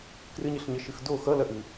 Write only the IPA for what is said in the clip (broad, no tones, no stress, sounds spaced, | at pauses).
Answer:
k r ɨ ɲ ɨ ɬ ɲ ʌ ʃ ɨ x d o x ʌ l ɐ ʔ ɨ